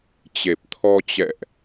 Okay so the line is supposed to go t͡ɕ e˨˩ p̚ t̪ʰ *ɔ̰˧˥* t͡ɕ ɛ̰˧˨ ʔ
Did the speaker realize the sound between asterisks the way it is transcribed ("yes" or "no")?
no